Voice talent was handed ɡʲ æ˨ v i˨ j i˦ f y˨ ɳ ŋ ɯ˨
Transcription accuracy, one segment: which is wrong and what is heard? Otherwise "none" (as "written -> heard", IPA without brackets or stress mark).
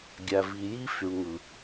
none